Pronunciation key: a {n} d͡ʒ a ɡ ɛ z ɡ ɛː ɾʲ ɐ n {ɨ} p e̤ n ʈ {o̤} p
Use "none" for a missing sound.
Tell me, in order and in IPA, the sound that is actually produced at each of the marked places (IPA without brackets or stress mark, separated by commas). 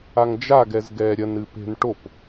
ŋ, ɨ, o